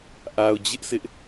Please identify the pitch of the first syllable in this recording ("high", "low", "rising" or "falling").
low